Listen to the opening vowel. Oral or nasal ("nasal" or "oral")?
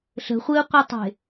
oral